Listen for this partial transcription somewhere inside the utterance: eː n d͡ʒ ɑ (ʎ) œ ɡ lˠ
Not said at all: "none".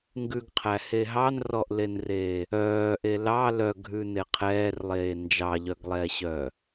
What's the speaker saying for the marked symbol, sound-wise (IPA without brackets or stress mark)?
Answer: ʎ